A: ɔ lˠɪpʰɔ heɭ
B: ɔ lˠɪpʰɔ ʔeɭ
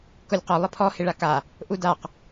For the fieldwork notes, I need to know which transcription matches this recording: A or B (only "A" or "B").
A